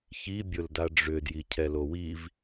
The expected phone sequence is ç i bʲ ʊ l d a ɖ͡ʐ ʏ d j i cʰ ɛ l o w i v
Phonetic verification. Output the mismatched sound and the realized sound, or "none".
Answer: none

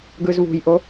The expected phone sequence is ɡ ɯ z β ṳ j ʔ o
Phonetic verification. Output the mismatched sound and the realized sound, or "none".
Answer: none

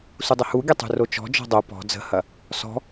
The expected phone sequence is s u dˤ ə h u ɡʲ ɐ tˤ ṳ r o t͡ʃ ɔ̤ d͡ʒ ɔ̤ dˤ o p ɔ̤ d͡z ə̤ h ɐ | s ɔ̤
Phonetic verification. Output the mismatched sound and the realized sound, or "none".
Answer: none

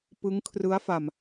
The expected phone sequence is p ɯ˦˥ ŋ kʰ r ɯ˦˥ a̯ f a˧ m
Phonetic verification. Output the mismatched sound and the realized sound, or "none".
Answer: none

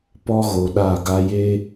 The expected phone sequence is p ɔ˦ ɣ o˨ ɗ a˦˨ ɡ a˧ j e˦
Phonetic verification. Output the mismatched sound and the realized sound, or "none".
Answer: none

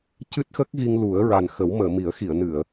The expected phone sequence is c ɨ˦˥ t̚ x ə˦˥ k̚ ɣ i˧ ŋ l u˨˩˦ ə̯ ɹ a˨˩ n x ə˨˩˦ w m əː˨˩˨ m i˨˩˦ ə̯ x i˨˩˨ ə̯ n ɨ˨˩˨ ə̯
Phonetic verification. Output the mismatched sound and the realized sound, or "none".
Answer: none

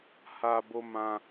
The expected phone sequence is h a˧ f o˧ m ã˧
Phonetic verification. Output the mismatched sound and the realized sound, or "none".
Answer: f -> b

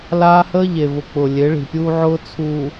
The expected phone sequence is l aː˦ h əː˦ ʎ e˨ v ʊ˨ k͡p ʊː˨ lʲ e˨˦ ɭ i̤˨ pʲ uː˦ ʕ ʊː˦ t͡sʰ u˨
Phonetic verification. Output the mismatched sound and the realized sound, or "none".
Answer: none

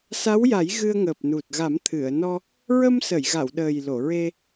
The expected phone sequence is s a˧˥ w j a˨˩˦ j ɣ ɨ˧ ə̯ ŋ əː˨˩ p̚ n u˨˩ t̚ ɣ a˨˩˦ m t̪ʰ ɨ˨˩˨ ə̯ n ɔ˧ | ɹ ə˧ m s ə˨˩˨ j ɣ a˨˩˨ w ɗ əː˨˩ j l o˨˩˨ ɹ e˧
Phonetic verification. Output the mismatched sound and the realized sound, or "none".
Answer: none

